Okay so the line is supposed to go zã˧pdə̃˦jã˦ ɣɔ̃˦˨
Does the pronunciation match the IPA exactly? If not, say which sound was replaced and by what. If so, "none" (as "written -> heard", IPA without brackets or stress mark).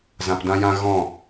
ə̃˦ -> ã˦